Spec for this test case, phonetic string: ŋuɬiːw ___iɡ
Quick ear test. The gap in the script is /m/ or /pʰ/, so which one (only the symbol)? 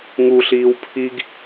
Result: pʰ